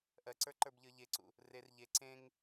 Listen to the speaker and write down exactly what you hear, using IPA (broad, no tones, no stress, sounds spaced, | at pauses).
ʔ ɜ ǀ ə˞ ǃ ə˞ b ʎ ə˞ ʎ e ǀ ṵ | r e r ʎ e ǀ ẽ ŋ